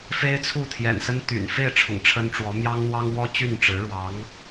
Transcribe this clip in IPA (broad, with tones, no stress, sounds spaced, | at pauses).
f e˥ ɪ̯ t͡sʰ u˥˩ t̪ʰ j ɛ̰˨˩ n s ə˥ n t̪ y̰˨˩ n f e˥˩ ɪ̯ ʈ͡ʂʰ ʊ̰˨˩ ŋ ʈ͡ʂʰ ə˥ n ʈ͡ʂ w ɔ˧˥ m j ɑ˥ ŋ n̪ w ɑ˥ ŋ w ɔ˥ t͡ɕ y˥˩ n ʈ͡ʂ ɻ̩˧˥ ɻ w ɑ˧˥ ŋ